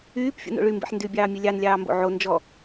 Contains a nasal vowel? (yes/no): no